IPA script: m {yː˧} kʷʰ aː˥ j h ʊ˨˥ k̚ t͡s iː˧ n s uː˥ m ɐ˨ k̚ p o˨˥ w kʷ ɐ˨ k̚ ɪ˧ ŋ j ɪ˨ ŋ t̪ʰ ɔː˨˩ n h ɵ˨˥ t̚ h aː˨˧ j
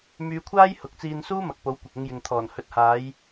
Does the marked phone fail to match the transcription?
no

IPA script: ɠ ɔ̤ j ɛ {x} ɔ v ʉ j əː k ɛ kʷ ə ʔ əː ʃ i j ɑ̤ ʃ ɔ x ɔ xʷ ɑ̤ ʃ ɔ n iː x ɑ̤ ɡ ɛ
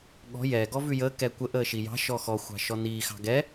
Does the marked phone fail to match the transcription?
yes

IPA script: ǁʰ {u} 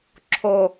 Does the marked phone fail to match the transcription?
yes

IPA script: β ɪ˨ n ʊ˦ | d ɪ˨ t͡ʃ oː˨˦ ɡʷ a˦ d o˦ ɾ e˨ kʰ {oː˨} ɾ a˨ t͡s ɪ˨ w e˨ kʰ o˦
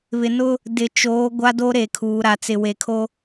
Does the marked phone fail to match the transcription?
yes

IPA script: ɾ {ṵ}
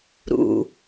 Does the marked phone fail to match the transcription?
no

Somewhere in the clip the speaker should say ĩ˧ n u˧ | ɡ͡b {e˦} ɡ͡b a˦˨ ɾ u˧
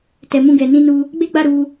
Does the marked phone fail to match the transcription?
no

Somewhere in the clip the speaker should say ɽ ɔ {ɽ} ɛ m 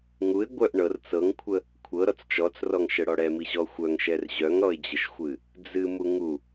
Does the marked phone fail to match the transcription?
no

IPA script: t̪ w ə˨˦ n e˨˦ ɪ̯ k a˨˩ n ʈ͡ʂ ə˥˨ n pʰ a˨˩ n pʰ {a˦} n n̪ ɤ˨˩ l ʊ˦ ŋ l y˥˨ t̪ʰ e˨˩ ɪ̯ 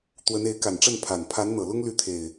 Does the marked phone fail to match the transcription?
yes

